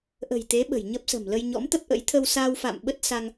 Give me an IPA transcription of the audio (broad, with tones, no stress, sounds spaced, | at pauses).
ʔ ə̤˨˩ j t̪ e˨˦ ɓ ə̤˨˩ j ɲ ə˦˥ p̚ s ə̤˨˩ m l ə˧ j ɲ ɔ̰˧˥ m t̪ ə˦˥ p̚ ʔ ə̰˧˥ j t̪ʰ ə˧ w s aː˧ w f a̰˧˨ m ɓ ə˦˥ t̚ s a˧ ŋ